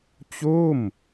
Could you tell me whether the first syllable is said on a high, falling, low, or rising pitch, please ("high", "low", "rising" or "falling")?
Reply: falling